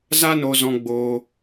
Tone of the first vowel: high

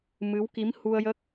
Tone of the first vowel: rising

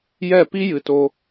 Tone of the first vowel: falling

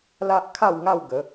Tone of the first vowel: high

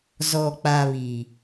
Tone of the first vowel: low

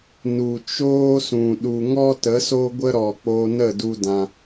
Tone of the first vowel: low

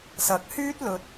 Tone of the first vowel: rising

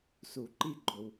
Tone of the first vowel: low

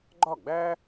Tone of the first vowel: falling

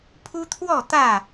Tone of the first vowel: high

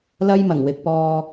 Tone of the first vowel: high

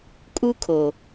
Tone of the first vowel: high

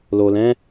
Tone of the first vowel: low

